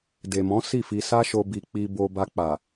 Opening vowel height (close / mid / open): mid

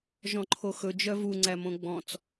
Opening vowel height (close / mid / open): mid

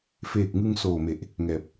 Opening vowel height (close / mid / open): mid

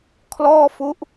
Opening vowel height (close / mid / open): mid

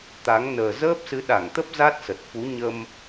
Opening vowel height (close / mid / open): open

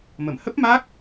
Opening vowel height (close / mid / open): mid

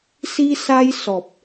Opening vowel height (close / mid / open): close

